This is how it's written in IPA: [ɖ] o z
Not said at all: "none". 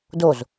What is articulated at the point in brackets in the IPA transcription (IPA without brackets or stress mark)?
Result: d